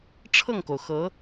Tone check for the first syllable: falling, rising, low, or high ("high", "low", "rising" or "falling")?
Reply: falling